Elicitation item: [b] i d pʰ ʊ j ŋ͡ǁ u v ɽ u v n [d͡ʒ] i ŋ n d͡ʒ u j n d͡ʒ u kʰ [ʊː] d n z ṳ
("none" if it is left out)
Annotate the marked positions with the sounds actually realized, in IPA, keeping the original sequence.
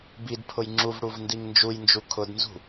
b, d, ʊ

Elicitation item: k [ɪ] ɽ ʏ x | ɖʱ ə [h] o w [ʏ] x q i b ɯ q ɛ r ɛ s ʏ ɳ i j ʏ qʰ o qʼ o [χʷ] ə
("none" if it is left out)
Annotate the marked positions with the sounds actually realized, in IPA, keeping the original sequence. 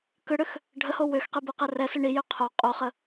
ʏ, h, ʏ, χ

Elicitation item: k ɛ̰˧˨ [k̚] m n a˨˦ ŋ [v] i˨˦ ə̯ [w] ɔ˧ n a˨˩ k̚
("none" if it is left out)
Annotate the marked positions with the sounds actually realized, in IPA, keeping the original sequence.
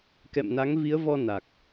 none, v, v

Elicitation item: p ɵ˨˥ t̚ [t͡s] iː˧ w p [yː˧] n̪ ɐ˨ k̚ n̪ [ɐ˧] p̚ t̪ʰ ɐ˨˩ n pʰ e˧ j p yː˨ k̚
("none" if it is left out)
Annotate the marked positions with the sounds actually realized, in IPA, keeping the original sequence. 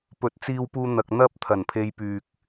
t͡s, uː˧, ɐ˧

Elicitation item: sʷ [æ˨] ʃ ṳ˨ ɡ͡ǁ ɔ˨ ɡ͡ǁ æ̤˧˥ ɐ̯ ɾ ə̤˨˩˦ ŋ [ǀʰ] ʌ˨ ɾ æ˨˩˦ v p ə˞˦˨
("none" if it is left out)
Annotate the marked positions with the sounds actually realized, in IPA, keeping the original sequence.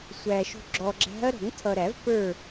æ˨, tʰ

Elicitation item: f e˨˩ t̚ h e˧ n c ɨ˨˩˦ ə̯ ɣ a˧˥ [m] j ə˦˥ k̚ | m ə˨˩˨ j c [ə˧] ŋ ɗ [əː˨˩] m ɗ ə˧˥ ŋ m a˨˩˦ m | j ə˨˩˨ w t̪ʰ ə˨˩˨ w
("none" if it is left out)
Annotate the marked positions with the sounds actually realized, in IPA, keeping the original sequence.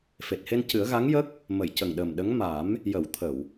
ŋ, ə˨˩, əː˨˩

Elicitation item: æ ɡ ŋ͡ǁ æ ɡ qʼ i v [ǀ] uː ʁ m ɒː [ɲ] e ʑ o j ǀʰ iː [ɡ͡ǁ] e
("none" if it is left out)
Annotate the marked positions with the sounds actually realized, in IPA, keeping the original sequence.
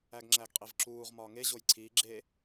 ǁ, ŋ, ɡ͡ǁ

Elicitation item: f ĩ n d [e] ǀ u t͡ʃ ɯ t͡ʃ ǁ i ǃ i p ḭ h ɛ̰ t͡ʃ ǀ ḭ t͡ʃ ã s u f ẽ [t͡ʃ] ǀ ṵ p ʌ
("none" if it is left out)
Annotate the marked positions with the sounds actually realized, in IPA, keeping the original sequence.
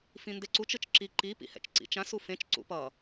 e, t͡ʃ

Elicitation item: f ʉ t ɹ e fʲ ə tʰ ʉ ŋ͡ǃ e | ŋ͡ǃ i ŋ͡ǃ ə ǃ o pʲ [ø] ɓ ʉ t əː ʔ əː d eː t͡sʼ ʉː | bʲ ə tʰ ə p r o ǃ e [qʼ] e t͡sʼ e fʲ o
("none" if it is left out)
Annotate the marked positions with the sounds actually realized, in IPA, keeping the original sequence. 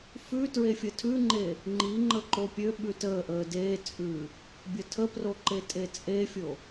ø, tʼ

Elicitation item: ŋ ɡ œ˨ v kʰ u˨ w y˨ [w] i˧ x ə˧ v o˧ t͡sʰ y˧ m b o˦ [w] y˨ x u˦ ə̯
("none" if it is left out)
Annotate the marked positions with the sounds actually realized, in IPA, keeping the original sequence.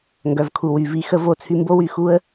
v, w

